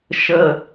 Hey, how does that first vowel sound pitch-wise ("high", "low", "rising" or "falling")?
low